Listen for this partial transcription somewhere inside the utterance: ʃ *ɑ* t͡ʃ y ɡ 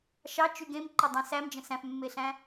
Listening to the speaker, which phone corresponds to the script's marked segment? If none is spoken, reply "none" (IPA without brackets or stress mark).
ɑ